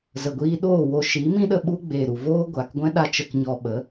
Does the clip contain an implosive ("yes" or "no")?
yes